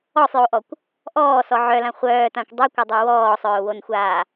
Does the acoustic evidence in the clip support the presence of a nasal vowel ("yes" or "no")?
yes